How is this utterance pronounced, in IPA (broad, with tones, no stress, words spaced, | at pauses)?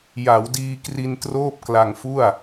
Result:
ja˩˦wdiː˧kri˧n troː˥˩p̚kla˧ŋfu˥˩a̯